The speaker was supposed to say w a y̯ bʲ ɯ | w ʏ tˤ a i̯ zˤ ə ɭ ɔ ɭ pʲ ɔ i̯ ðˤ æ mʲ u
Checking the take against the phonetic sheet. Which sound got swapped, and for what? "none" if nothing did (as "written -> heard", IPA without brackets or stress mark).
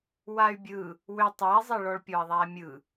u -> ɯ